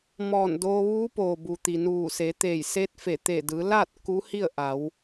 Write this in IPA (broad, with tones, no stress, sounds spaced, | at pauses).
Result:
m ɔː˧˩ n d oː˧ ʋ uː˧˥ p oː˩ b u˩ t̪ i˩ n uː˧˩ s e˩˧ t̪ eː˧˩ j s eː˧˥ t̚ f e˧˩ t̪ eː˧˩ d ɯː˩˧ l aː˥˨ t̚ k u˧˥ h i˥˨ ə̯ ʔ a˩˧ w